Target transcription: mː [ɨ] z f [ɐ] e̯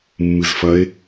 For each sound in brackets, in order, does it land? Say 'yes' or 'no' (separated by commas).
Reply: yes, yes